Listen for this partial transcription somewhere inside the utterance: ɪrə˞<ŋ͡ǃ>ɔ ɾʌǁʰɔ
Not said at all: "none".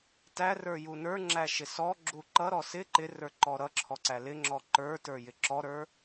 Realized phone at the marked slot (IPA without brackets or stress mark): ǃ